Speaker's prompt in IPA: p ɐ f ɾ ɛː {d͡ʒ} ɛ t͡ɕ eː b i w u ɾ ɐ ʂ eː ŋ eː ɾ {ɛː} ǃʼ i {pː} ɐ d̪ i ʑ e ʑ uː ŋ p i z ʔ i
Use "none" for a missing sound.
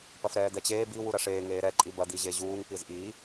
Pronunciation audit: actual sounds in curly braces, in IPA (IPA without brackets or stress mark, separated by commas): d̪, ɛ, b